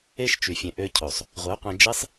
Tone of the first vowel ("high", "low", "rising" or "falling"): high